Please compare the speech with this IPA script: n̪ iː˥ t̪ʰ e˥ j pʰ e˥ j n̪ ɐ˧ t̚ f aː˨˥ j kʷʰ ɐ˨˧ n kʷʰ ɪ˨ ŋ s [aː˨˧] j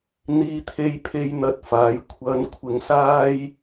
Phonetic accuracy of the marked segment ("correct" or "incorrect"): incorrect